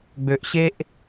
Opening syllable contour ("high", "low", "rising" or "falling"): low